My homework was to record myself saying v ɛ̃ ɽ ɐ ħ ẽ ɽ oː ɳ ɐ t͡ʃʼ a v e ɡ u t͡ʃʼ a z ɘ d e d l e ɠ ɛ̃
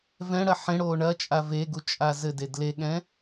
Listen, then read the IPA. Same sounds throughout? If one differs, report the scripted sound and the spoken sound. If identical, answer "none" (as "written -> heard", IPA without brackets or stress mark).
none